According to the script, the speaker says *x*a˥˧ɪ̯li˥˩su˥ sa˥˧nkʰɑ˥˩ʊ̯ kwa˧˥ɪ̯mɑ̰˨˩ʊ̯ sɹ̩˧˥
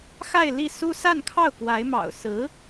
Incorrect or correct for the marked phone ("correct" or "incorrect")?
correct